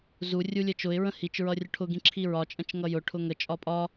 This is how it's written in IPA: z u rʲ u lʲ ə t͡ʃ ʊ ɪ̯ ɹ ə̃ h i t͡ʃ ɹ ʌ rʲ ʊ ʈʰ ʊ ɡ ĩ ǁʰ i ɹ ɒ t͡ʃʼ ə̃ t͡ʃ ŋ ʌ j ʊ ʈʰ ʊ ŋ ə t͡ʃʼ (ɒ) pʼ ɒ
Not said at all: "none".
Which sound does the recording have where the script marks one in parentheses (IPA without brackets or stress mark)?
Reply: ɒ